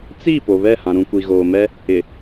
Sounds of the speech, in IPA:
t͡s i˦˨ p o˨ β ɛ˦˨ h ã˨ ɾ ũ˨ kʷ i˨ ɣ oː˨ m ɛ˦ | ɪ˨

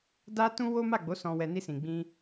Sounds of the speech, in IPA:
d a˦ t ũ˦ w o˦ m a˦˨ ɡ͡b o˨˦ s ɔ̃˧ w ɛ˧ n i˧ s ĩ˨ ɡ͡b ĩ˧

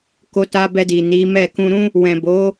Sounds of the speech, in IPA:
k o˧ t a˧ b ɛ˧ d i˨ n i˨˦ m ɛ˦˨ k ũ˧ ɾ ũ˦ | w ɛ̃˨ b o˨˦

